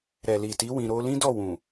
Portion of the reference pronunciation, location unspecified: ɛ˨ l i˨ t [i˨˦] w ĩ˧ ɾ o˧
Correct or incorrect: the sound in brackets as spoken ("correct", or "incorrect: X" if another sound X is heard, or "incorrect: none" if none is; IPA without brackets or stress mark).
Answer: correct